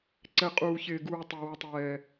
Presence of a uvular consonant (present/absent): present